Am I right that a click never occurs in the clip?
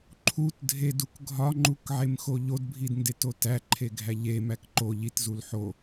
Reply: no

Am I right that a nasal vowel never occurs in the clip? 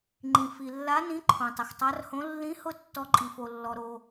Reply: no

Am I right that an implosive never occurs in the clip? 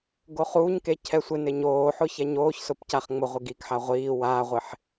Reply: yes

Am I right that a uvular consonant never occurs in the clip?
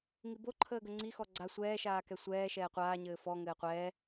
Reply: no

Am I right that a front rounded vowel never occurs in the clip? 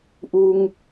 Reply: yes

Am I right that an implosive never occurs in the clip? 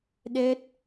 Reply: no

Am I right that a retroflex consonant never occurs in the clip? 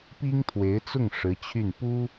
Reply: no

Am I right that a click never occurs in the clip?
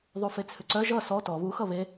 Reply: no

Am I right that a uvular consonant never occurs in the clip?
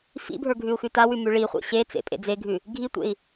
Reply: no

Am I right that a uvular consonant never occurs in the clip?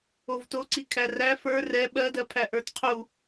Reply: no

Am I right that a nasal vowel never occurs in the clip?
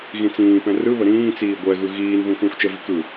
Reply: no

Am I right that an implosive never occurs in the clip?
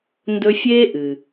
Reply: yes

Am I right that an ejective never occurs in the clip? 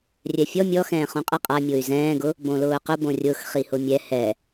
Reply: no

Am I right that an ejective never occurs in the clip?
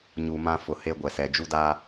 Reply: yes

